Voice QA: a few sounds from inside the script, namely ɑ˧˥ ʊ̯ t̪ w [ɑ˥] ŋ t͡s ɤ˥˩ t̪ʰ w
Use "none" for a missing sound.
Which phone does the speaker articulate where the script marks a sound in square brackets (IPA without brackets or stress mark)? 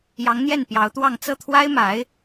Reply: ɑ˥˧